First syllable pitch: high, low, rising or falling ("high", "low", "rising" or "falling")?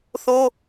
high